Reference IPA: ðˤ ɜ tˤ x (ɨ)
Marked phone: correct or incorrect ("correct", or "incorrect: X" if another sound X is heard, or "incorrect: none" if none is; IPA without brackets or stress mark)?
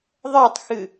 correct